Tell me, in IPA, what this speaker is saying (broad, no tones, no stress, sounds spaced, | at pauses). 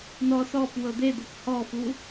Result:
n ɔ s ɔ p w ɤ d̪ e d̪ ɤ p h ɔ f u